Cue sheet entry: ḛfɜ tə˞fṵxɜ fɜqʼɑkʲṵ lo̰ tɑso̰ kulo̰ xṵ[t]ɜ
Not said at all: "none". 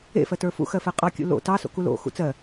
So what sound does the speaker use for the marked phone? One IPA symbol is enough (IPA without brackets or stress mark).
t͡s